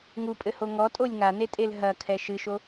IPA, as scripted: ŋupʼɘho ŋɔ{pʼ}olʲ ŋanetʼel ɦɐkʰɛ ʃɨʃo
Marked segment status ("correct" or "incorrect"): incorrect